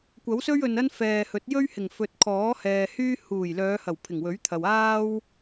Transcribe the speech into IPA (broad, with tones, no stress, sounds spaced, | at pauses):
kʷ ɐ˨˥ w s ɵ˥ ɥ ɵ˨ n ɐ˥ n f ɛː˨ h ɵ˨˥ t̚ j ɵ˥ ɥ h ɪ˨˩ ŋ f ɵ˨ t̚ kʰ ɔː˨˥ h ɛː˨ h yː˥ h uː˨˩ j l œː˨˧ h ɐ˨˩ w pʰ ɪ˨˩ ŋ w ɵ˨˥ ɥ t̪ʰ ɐ˨ w aː˥ w